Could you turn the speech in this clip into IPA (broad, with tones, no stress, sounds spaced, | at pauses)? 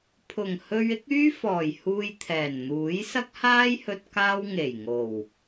pʰ ʊ˨˩ ŋ h ɵ˧ ɥ ɪ˨˥ k̚ yː˥ f ɔː˨˩ j h uː˧ j t̪ʰ ɛː˨˩ n n̪ uː˨˥ j s ɐ˥ k̚ h aː˥ j h ɵ˧ t̚ k aː˥ w ŋ e˨˩ j ŋ o˨˩ w